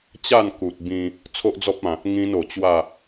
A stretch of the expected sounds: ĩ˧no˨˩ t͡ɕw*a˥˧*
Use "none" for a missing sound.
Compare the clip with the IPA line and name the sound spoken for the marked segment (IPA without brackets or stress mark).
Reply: a˥˧